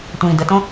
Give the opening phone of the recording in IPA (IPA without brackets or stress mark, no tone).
tʷ